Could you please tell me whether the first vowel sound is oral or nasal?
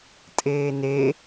oral